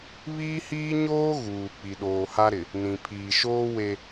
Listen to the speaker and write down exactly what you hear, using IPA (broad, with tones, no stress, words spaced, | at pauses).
βiː˦hiː˦ɲoː˦ ɣuː˨ k͡pi˨ɗoː˨ha˦ɾɪ˨ | nĩ˨ pʰiː˨ʃoː˦ we˦